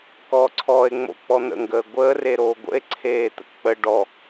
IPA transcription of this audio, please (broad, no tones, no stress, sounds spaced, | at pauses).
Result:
k ɔː ǀʰ ɔː e̯ ŋ͡m o̰ k͡p ɔ n̪ ə̰ ŋ ɡ əː ɡʷ əː r e ɾ oː ɡʷ ə̰ e̯ ǀʰ eː t̪ ə̰ k k͡p ə ɖ ɔ